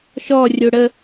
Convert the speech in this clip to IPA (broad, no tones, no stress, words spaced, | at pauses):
ʃɔrʲo ɽə